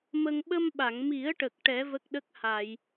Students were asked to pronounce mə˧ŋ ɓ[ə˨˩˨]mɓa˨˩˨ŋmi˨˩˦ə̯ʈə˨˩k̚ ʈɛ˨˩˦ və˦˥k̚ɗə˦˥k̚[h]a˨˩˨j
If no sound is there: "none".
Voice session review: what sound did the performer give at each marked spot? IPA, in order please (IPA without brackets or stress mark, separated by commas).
ə˧, h